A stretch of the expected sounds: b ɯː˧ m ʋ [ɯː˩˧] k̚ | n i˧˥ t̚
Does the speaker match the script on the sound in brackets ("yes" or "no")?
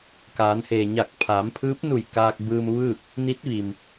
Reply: no